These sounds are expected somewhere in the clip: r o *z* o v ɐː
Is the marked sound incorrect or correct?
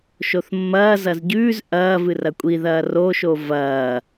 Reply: incorrect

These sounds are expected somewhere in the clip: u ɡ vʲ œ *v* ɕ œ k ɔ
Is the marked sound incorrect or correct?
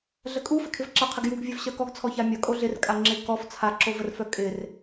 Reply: correct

